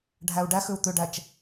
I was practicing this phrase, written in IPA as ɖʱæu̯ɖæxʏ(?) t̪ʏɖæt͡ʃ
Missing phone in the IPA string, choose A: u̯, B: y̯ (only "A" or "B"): A